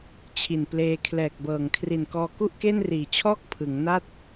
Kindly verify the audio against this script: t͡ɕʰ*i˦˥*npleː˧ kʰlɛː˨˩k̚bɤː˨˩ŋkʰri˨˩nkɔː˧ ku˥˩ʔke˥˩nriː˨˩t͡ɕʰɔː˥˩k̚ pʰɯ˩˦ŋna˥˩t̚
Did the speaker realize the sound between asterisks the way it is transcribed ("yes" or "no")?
no